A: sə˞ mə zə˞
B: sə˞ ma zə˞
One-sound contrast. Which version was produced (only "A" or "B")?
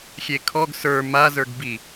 B